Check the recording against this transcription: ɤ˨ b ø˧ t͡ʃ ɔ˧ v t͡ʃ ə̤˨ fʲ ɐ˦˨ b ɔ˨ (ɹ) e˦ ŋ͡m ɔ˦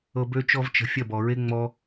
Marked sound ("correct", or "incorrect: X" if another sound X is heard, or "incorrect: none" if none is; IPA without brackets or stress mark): correct